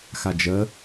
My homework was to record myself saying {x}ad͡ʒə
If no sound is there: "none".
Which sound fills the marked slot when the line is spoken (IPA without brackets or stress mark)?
x